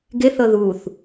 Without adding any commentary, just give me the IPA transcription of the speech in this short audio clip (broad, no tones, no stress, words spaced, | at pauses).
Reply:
ɡeθɤ ðuθ